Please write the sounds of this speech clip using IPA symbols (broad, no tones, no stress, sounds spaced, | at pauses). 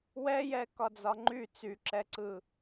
w ɛ j ɛ k ɒ d͡z ɒ ŋ͡ǃ y t͡s y ǁ ɛ ǀ ɯ